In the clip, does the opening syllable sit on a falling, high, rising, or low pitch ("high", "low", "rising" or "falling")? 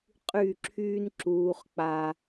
falling